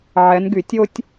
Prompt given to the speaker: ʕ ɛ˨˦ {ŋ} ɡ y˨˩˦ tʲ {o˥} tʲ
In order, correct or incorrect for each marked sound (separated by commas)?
incorrect, correct